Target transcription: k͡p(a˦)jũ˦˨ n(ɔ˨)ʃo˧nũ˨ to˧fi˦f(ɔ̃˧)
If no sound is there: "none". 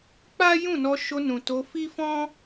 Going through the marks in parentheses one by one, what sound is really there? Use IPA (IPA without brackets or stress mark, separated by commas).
a˦, ɔ˧, ɔ̃˦